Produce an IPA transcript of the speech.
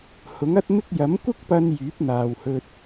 h ʊ˨˥ ŋ ɐ˥ t̚ m ɪ˥ k̚ j ɐ˨˥ m kʷ ɪ˥ k̚ p ɐ˧ n j yː˨˥ p̚ n̪ aː˨ w h ɵ˧ t̚

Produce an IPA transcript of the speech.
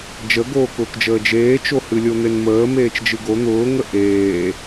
d͡ʒ ə ɡ oː k ʊː k d͡ʒ əː d͡ʒ eː t͡ʃ o h ɨ lʲ o n̪ e n m əː m eː t͡ʃ d͡ʒ ɨ ɡ o n̪ ʊː ŋ ə ʔ eː

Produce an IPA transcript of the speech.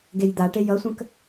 ɡ e j d̪ a ʈ e j ʌ sʷ ə̃ k

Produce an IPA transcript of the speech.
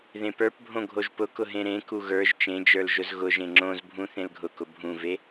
ð ẽ p ə˞ p bʱ õ ɡʱ o ʒ p ʊ k ʊ ɦ ẽ ɾ ẽ k u ɣ ə˞ ʒ t͡ʃ ẽ d͡ʒ ə˞ l ʒ ʊ z ɣ ʊ ʒ ẽ ŋ͡ǁ õ z bʱ ũ θ ẽ l ɡʱ ʊ k ʊ bʱ ũ v e

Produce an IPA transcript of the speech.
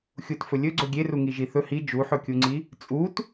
xʲ u t f ɵ lʲ ɵ ɡ͡ǀ ɵ ɡʲ e r u ŋ i ʒ i θ ɵ h i d͡ʒ u ħ ɵ kʲ u ŋ͡ǀ i | t͡sʼ u t

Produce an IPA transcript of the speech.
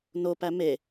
n o p æ m e

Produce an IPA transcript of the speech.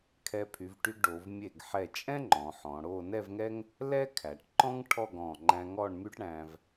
kʰ ɛ˧ pʰ y˩˧ v ʈ y˧ ɡ ɖ o˩˧ v mʲ e˧˩ ɡ ħ ɛ˧˩ t͡ʃʼ ɛ̃˥ ŋ͡ǃ ɔ̃˩˧ ħ ɔ̃˩˧ ɽ o˥˧ n ɛ˥˧ v ŋ ɛ˥ ŋ | l ɛ˥ kʰ æ˩˧ ʈ ǃ ɔ̃˥ ŋ ʈʰ ɔ˥˧ ɡ ɔ̃˧˩ ŋ͡ǃ æ̃˧ ŋ ɔ˥˧ ɳ m y˥ ʈ ɽ æ̃˧ v

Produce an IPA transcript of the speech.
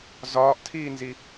z ɒː ʔ tʰ iː n z i

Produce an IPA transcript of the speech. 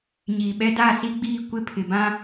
ɲ iː˨ ɓ ɛ˦ d a˦˨ s i˦ ɡ͡b iː˦˨ kʷ ɪ˦˨ pʰ ɪ˨ b ã˦

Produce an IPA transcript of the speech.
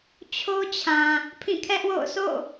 t͡ɕʰ o˦ t͡ɕʰ ã˨ | pʰ ĩ˦˨ kʰ ɛ˦ ʔ w o̰˦˨ ʊ̯ s o̰˦˨

